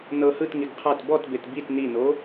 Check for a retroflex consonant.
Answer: absent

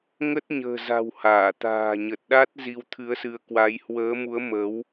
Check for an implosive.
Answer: present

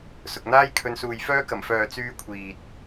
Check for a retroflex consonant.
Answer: absent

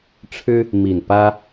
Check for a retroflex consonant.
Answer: present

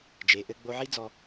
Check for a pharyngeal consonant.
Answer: present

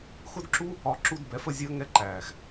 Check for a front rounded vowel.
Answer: absent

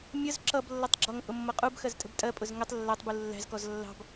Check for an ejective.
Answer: present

